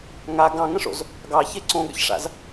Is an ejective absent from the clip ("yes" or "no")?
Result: yes